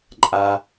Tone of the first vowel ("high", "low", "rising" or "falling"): low